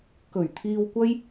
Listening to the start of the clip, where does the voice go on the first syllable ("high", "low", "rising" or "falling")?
low